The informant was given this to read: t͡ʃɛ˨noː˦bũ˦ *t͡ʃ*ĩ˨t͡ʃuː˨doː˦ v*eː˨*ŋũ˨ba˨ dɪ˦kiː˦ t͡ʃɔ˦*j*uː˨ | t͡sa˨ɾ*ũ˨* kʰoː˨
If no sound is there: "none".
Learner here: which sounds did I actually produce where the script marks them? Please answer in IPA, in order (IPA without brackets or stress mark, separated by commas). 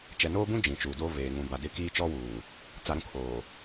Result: d͡ʒ, eː˨, w, ũ˨